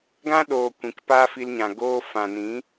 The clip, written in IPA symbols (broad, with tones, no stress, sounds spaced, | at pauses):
ɡ ã˦ ɗ oː˨ kʷ ĩ˨ k p aː˦ f i˧ l ɲ ã˨ ɡ oː˧ f ã˨ n ĩ˨˦